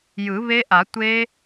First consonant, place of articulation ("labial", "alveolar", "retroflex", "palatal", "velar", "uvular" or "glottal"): palatal